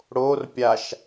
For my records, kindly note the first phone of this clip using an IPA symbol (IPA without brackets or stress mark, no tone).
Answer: ɽ